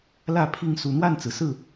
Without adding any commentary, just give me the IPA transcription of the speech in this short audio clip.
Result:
l ä˥˨ pʰ i˥˨ ŋ s u˨˩ n̪ w a˥˨ n t͡s ɹ̩˩ s ɹ̩˥˨

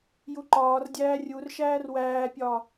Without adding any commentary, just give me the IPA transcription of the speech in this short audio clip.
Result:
j u ǃ ɒː r dʲ æː rʲ u r ʃ æː r w æː pʲ ɒː

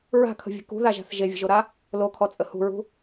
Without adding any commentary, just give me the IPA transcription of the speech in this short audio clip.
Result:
ɹ a̤ kʰ ə̤ vʲ ə̤ k ṳ ð a ʒ a̤ θ ʒ e vʲ ə̤ ʒ o ɾ a | l o kʰ ɔ t͡sʼ ə h ṳ ɹ ṳ

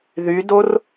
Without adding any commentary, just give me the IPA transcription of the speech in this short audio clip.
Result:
ð y d o r

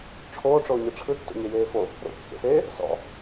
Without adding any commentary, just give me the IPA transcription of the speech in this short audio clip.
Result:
ʈ͡ʂʰ oː ʈ͡ʂ oː ɲ ɯ ʈ͡ʂʰ ɯ tː o̰ ɲ e j eː f o | ɾ o̰ kː ḛ s eː | s ɔ̰

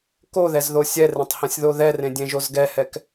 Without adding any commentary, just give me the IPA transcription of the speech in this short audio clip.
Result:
k o ð ɛ z ð o sʲ ɛ r ẽ tˤ h ɛ̃ sʲ ð o ð ɛ r ẽ dʲ ẽ ʒ o z ɡ ɛ h ɛ k

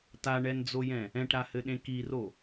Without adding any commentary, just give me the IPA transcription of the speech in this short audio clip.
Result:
t a ɳ ɛ n d͡z o j ɛ̃ | ɛ̃ ʈ ɾ a h ɘ ɗ ẽ k i r o

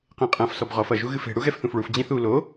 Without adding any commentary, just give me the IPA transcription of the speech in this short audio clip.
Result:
q ẽ qʼ ɐ̃ f s ɔ b ʁ ɔ f ɐ ʒ u ɣ ɨ f e̤ ɽ u ɣ ɛ f θ ũ f ɭ u f d͡ʑ ĩ θ u l o

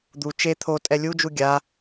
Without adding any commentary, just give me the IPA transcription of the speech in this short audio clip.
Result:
d̪ u t͡ʃ e t̪ʰ o tʼ ɛ lʲ u d͡ʒ u ɡʲ a

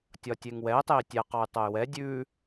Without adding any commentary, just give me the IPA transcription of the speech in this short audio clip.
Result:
tʲ ɒ tʲ e ŋ w ɛ tˤ e i̯ tʲ ɛ q ɒ y̯ tˤ o y̯ w ɛ dʲ ʉ

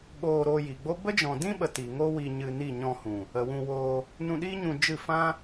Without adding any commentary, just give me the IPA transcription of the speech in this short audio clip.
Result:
ɓ oː˧ ɾ oː˧ j i˨ ɡ͡b o˦ b ə˦ d͡ʒ ɔ̃˨ d ĩ˦ ɓ ə˨ t i˨ ŋ o˦ w i˧ ɲ ɨ˧ n i˦˨ ɲ ɔ̃˧ h ũ˨ | ə˨ w ũ˧ w oː˧ | n ũ˧ ɗ iː˦ ɲ ũ˧ d͡ʒ ɨ˦˨ f ã˦

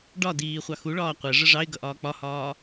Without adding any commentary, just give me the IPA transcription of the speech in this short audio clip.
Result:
ɖ ɒ d iː χʷ ɑ x u ɭ ɒː qʷ ɛ ʐ ə ʐ ɑ ɪ̯ ɡ ʌ ʔ ɒː k͡p ɒ h ɒː

